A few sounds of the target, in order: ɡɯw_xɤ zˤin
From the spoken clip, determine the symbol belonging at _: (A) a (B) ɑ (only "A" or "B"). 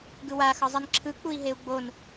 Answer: A